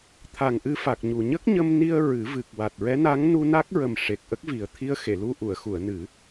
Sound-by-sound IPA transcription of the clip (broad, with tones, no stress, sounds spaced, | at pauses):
t̪ʰ a˨˩ ŋ ʔ ɨ˧ f a˨˩ k̚ ɲ u˨˩ ɲ ə˦˥ k̚ ɲ ə˧ m n i˧ ə̯ ɹ ɨ˨˩˦ v ɨ˨˩ k̚ w a˨˩ t̚ ɹ ɛ˧˥ n a˧˥ ŋ n u˧ n a˦˥ k̚ ɹ ə˨˩ m ʂ e˨˩ k̚ ʔ ə˦˥ k̚ v i˨˩ ə̯ t̪ʰ i˧ ə̯ x e˨˩˨ l u˧ ʔ u˨˩˨ ə̯ x u˨˩˨ ə̯ n ɨ˨˩˦